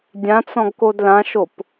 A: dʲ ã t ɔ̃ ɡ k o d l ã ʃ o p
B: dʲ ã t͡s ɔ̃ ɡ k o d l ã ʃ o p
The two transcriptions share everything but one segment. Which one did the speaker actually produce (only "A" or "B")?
B